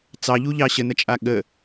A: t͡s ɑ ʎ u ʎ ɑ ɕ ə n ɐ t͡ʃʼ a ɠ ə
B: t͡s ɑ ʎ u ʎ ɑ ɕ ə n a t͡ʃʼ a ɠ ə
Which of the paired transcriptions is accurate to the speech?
A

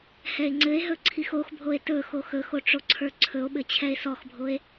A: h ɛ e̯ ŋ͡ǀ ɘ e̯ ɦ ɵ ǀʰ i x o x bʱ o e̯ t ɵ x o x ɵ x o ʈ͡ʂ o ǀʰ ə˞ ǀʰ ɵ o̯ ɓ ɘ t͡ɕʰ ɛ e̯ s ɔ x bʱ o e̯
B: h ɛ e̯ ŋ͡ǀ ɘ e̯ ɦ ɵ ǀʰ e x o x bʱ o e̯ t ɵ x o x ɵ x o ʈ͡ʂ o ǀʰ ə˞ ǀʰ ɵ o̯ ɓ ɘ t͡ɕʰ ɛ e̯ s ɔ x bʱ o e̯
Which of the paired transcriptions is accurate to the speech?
A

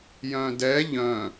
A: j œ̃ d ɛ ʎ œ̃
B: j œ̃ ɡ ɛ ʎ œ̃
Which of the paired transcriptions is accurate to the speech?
A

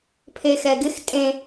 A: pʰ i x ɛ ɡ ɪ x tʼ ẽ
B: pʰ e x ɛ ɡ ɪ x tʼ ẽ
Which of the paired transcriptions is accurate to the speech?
B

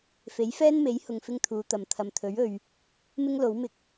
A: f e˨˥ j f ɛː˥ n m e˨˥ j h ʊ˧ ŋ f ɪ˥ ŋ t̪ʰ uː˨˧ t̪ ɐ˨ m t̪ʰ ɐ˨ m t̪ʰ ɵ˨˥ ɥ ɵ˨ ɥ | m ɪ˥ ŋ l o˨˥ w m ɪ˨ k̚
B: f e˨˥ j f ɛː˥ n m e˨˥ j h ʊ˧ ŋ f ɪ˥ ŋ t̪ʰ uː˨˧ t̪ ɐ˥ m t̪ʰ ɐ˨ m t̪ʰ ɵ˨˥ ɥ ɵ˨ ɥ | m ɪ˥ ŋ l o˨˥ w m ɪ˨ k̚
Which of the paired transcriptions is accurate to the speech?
A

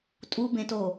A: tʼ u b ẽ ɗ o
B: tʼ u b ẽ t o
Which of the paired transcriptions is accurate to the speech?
B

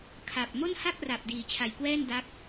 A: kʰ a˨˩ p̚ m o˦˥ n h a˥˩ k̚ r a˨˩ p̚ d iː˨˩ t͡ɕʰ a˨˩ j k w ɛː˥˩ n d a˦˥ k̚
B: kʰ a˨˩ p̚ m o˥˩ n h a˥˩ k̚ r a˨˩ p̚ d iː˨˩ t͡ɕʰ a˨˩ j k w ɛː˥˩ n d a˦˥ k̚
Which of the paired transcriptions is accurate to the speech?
B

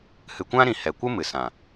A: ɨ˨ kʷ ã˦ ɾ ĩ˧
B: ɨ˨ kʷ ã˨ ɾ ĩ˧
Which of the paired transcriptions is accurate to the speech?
A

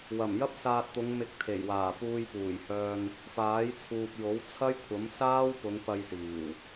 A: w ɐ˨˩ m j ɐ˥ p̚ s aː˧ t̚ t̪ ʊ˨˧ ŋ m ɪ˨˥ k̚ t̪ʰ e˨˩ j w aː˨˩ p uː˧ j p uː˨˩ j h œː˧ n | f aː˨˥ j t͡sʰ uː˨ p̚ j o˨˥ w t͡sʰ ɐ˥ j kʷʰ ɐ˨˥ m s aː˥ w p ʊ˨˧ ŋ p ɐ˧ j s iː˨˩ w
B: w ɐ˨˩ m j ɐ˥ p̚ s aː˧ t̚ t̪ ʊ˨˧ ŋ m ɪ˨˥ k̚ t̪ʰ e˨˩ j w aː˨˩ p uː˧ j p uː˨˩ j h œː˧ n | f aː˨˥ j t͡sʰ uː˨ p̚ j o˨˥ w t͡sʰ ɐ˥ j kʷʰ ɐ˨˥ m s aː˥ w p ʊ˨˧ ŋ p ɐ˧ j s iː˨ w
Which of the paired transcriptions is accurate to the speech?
A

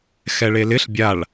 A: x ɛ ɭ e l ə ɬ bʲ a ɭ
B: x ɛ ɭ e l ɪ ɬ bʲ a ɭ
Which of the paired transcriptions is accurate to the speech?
B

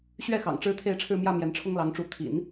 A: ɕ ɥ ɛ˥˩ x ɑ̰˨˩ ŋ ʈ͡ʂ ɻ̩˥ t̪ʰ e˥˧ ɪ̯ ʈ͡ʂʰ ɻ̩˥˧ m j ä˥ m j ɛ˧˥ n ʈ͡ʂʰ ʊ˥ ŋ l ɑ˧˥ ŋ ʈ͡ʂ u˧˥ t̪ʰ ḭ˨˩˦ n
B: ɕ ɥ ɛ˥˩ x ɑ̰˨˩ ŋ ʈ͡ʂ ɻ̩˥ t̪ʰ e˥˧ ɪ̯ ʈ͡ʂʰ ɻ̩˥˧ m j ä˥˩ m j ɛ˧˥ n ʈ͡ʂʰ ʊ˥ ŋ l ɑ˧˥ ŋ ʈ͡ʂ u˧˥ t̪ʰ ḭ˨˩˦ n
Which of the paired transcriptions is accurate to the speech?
B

